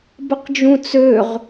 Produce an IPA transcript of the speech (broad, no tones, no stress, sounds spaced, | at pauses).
b ə q d͡ʒ ũ t͡s ø ʁ